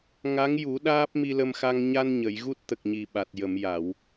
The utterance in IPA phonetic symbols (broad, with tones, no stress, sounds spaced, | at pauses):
ŋ a˧˥ ŋ j u˨˩˦ ɗ aː˦˥ p̚ m i˧ l ə˧ m x a˧ ŋ ɲ a˧ n ɲ ə˨˩˨ j ɣ u˦˥ t̚ t̪ ə˨˩ k̚ ɲ i˨˩ ɓ a˨˩ t̚ j ə˨˩˨ m j a˨˩˨ w